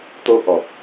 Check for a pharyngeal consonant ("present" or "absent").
absent